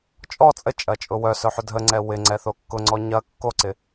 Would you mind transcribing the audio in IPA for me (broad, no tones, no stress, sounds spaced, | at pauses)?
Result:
t͡ʃʼ ɔ t͡sʼ ə t͡ʃʼ ɐ t͡ʃʼ ʊ w œ s œ ħ ʏ dʱ ə ŋ͡ǀ ɛ w ɪ ŋ͡ǀ ɛ θ o kː ʊ ŋ͡ǀ ɔ ɲ ɐ kː o ǀ ɪ